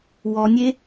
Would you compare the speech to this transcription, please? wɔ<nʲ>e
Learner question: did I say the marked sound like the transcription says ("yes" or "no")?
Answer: yes